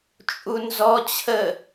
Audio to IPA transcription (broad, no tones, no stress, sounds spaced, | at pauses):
t͡ʃʼ u n z ɔ t͡ɕʰ ə